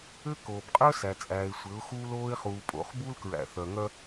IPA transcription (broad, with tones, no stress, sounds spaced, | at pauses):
ɘ˦ k oː˨ b qʼ œ˦ s æ˨ t͡sʼ æː˨ ɪ̯ sʷ ɘ˨˦ ʊ̯ x uː˦ l oː˦ ɪ̯ χ uː˨ pʼ o̰˨˦ χ b u˦ l k ɹ æ̰˨ θ œ˨ ŋ œ˦